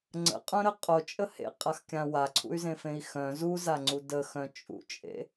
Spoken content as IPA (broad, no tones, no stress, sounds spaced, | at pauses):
ŋ͡ǀ ə̰ qʼ œ̃ ɾ ə qʼ o t͡ʃʼ ə h ḛ qʼ a x kʲ ã w a ǀʰ ṵ y̯ z ẽ f ẽ i̯ x œ̃ z u z a ŋ͡ǀ u d ə x œ̃ t͡ʃʼ ṵ t͡ʃʼ ḛ